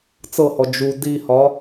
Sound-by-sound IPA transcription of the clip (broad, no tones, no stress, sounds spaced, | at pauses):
t͡s ɤ h ɔ d͡ʒ u d i h ɒ